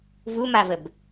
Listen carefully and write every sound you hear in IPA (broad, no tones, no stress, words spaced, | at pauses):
vumavəb